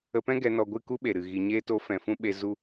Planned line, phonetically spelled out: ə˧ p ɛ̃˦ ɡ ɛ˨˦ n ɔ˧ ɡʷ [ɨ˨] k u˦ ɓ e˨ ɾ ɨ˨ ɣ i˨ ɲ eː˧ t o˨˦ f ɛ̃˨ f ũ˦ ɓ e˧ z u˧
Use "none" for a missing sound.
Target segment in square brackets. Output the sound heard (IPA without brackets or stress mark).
ɨ˦˨